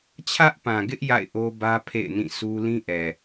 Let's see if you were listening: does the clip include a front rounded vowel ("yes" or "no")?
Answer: no